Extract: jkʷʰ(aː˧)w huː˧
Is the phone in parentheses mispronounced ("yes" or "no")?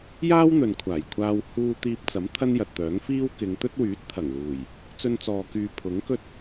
no